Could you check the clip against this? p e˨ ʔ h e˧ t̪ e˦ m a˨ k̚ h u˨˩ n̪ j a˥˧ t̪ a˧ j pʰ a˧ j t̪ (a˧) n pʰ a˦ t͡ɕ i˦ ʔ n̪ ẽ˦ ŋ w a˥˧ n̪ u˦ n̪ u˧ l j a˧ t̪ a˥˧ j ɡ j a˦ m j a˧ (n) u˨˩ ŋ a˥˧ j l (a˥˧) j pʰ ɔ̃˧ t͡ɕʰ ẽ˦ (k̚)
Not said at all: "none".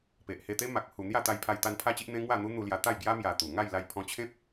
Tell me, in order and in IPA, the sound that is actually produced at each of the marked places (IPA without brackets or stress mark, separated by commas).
a˧, t̪, a˧, p̚